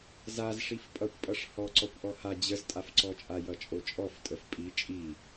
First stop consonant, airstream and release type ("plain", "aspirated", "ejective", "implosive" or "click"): ejective